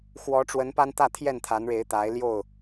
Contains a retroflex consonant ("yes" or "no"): yes